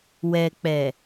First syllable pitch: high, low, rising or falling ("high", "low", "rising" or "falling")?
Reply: low